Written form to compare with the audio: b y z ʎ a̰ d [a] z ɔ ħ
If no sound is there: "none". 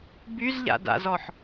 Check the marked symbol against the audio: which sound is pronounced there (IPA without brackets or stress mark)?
a̰